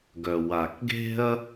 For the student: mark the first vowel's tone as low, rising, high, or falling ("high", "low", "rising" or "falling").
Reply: low